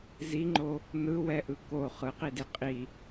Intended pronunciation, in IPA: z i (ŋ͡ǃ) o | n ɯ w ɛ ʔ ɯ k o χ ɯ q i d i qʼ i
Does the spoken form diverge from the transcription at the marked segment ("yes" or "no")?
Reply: no